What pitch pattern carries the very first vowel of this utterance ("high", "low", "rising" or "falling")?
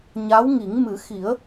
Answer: rising